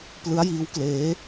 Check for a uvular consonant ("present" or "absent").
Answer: absent